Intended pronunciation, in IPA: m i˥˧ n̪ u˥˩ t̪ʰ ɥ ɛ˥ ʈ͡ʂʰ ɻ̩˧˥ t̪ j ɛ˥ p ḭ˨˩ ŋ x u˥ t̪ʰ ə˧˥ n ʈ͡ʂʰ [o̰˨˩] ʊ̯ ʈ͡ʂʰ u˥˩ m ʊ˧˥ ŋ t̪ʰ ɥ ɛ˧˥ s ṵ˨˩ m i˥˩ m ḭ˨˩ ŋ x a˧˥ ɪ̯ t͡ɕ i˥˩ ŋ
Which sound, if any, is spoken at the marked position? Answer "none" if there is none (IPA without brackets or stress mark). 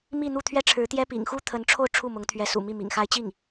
o˥˧